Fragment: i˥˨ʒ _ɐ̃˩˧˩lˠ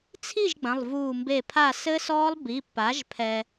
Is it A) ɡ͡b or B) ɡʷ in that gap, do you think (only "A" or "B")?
A